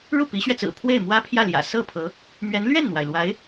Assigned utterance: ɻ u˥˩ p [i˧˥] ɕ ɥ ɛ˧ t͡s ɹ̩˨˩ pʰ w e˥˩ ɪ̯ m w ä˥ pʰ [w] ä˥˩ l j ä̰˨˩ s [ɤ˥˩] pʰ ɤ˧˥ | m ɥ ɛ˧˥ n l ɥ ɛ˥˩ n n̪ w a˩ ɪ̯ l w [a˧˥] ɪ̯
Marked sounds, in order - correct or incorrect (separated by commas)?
correct, incorrect, correct, correct